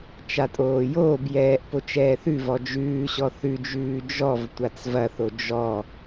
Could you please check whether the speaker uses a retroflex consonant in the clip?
no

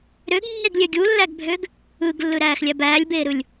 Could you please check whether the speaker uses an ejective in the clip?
no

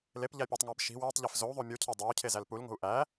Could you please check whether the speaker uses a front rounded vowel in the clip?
no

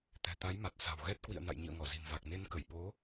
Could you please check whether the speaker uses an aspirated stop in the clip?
no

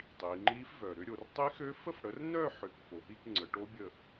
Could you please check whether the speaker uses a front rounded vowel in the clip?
yes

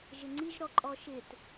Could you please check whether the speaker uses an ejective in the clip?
yes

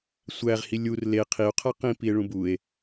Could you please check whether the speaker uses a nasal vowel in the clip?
yes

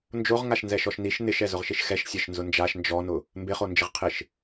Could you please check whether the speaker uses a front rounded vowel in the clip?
no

